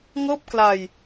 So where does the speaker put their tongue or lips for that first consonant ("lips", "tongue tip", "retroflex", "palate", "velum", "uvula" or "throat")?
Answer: velum